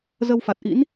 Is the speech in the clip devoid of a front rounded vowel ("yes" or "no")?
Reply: yes